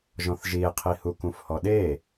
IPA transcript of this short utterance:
ʒɔ̃θʒie̯qʰihu kũfhɔɗe

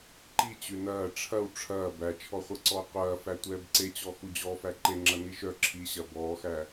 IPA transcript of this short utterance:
ǃit͡ɕʉ nɐː ʈ͡ʂʰɐw ʈ͡ʂʰɐː bæt͡ʃʰɔχʷɐǀɔː qʷɐːfæ tʷɛːbǀet͡ɕɔ xud͡ʑɔfæ ǃeŋ͡ǁɐ niʃœ ǁʰiɕɐ bɔːxæ

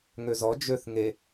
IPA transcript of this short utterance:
ŋøzɔ d͡ʒøθ ŋe

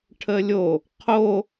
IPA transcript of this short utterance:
ʈʰəlʲo | qʰo

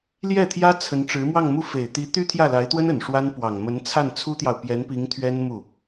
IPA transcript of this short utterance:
ljɛ˥˩t̪ʰjä˥ t͡sʰə˧˥n ʈ͡ʂɻ̩˧˥mwɑ˥˧ŋmu˥˩ fe˨˩ɪ̯t̪i˧˥ t̪y˥t̪ʰjä˥˩la˧˥ɪ̯t̪wə˥n ə˨˩nʂwa˥n pwɑ˨˩ŋmə˧˥nt͡sʰa˥˩n t͡sʰu˥t̪jɑ˨ʊ̯pjɛ˧˥npi˧˥ŋ t̪ʰɥɛ˥nmu˥˩

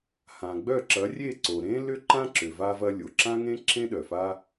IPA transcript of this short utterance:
hã˩ɡ͡bœ˥˩ ǁɐ˩˥rʲe˥˩ǀo˩ ɾẽ˥lʏ˥ ǃã˥ǁʏ˩va˧vɐ˧ lʲo˩ǁã˥ŋẽ˥ ǁʰẽ˥ ɗœ˩fa˥

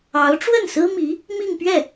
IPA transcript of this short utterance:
ɑ˧˥ʊ̯ʈ͡ʂwə˥˩nsɹ̩˥mi˧˥ | mi˥˧ŋpɥɛ˥˩

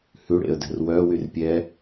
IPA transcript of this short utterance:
hʉɽḛə̯dɛ̤r wœwyr pʲɛ

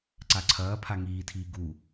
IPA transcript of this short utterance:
ǀaǀʰɐːpʰa ŋiːtʰiː ɡu

